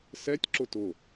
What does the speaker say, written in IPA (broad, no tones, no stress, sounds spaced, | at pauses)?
s ɛ tʲ ǁ ʊ t ʊ